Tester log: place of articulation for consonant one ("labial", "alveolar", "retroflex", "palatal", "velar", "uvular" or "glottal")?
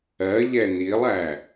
palatal